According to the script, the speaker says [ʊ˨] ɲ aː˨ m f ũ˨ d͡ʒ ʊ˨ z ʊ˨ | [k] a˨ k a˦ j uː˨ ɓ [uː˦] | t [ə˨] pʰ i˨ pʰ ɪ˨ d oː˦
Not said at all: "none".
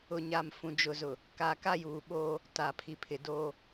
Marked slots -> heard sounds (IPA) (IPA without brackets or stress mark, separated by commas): ʊ˨, k, oː˦, a˨